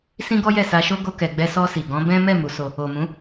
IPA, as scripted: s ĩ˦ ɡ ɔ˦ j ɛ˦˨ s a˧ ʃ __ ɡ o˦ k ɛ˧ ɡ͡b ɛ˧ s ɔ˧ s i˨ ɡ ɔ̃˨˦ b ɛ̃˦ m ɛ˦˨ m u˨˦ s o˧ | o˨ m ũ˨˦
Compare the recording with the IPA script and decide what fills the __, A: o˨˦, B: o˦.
B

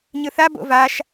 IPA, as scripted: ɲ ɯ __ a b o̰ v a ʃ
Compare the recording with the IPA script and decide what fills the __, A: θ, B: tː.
A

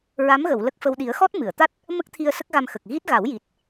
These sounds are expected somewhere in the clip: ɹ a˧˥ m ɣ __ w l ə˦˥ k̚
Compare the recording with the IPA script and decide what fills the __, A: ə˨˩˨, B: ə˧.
A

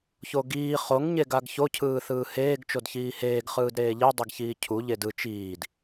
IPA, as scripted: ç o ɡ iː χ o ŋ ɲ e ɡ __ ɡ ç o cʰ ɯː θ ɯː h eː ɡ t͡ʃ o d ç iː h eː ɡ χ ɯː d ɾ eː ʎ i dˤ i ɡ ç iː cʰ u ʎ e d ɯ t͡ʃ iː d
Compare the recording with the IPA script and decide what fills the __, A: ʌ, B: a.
B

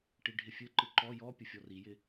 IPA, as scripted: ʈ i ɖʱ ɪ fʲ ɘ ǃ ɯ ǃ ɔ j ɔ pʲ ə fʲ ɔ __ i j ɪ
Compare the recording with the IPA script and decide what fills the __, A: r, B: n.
A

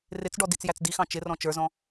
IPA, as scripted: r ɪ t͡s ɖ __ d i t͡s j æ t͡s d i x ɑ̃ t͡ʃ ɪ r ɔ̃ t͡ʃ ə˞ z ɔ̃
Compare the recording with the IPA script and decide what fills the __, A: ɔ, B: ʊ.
A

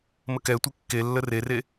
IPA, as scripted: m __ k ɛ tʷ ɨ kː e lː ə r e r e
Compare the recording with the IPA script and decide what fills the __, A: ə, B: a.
A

